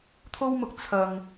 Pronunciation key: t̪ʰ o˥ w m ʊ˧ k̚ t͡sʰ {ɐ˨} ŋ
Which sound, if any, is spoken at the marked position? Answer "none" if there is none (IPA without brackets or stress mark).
ɐ˨